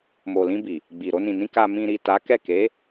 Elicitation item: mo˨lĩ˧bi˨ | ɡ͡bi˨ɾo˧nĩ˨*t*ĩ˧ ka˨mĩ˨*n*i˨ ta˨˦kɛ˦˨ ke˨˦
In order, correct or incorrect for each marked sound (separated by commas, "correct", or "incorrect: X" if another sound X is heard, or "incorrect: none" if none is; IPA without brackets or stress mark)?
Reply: incorrect: n, incorrect: ɾ